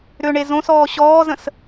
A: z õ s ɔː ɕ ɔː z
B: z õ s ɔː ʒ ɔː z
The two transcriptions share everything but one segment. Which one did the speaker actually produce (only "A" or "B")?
A